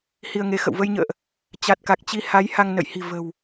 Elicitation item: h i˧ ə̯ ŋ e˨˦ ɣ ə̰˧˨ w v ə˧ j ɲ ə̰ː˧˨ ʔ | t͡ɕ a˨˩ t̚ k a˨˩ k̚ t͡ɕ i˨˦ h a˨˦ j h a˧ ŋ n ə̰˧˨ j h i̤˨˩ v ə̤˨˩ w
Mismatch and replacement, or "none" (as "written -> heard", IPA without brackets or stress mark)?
ɣ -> x